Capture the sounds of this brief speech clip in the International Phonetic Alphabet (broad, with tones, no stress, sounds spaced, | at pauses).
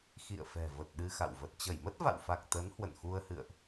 x ḭ˧˨ ə̯ f ɛ̤˨˩ v ə˨˩ t̚ ɗ ɨ˧ x a̰˧˨ w v ə˨˩ t̚ t͡ɕ ə˧˩ j m ə˦˥ t̚ v a̰˧˨ w f a˨˩ k̚ t̪ ə˨˦ n h w ə̰˧˨ n x u˧ ə̯ h ɨ̰˧˨ ə̯ ʔ